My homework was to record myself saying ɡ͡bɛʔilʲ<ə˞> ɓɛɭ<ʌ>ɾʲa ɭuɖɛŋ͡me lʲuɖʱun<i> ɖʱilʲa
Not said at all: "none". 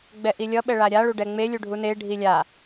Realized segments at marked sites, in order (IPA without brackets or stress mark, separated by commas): ʌ, a, e